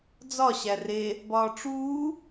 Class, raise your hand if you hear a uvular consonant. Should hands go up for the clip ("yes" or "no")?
no